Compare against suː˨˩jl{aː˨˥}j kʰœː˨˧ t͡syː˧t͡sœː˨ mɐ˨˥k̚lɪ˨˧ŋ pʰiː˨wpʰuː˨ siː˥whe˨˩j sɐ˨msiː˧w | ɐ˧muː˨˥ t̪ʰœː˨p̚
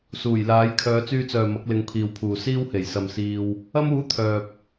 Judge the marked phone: correct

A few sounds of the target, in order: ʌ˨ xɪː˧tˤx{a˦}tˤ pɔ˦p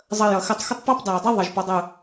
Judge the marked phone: incorrect: ə˦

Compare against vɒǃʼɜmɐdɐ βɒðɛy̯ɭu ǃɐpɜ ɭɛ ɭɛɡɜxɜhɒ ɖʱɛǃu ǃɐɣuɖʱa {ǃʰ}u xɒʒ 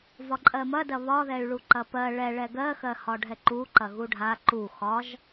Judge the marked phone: incorrect: ǃ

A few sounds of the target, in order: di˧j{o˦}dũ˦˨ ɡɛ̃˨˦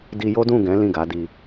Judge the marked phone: correct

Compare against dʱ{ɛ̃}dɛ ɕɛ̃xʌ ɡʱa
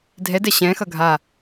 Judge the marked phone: incorrect: ɛ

